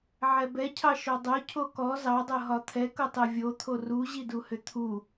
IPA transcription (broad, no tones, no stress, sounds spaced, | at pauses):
ʕ ɛ b ɛ cʰ ɑ ʃ ɔ dˤ o cʰ o k ɔ z ɑ dˤ ɤ ɦ ɒ t̪ʰ ɛ k ɤ tˤ ɛ vʲ o t̪ʰ o r u ʑ i d u h ʏ t̪ʰ u